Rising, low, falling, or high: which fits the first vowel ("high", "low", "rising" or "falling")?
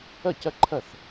falling